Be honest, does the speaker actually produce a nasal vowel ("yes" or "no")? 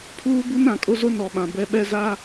yes